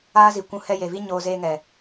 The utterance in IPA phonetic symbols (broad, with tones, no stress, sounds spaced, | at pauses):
aː˦ z i˨ kʷ ũ˧ h ɛ˧ j e˨ v i˦ ɲ oː˧ z eː˧ ŋ ɛ˨